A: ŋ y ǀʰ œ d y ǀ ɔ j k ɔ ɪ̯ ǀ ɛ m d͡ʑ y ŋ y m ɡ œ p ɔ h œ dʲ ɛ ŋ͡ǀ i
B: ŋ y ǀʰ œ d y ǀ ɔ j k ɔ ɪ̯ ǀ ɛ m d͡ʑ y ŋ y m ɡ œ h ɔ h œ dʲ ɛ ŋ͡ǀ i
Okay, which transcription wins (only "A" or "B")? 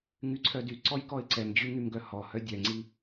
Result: B